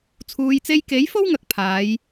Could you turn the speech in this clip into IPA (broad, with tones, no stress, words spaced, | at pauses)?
t͡sʰuː˨jt͡se˧jke˨˥jfo˥w ŋɐ˨˥k̚pʰaː˨˧j